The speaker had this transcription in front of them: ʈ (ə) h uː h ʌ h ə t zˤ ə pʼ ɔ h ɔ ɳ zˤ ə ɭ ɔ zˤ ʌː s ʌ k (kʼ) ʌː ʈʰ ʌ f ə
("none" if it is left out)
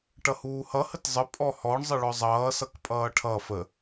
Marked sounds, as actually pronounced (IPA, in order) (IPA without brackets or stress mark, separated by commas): ʌ, pʼ